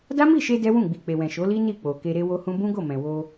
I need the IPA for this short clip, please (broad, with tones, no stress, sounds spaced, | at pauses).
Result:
d a˦ m i˦˨ ʃ e˧ d ɛ˦ w ũ˦˨ ɡ͡b i˨ k͡p e˨ w ɛ̃˨ ʃ o˨˦ l i˦ n i˦˨ k͡p o˨ k e˧ ɾ e˦ w o˦ h ũ˦ b ũ˦ ɡ o˦˨ m ɛ̃˨ w o˧